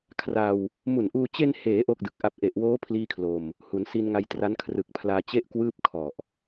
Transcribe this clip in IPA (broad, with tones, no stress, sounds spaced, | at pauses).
kʰ r a˧ w | m u˨˩ n ʔ uː˧ t͡ɕ e˧ n h eː˩˦ ʔ o˥˩ k̚ d ɯ˨˩ k̚ ʔ a˦˥ p̚ ʔ e˨˩ ʔ w oː˦˥ pʰ l iː˥˩ kʰ l o˧ m | h u˩˦ n s i˧ n ŋ a˧ j t r a˦˥ n kʰ r ɯ˨˩ k̚ pʰ l aː˧ t͡ɕ e˥˩ ʔ k w ɯː˥˩ p̚ kʰ ɔ˨˩ ʔ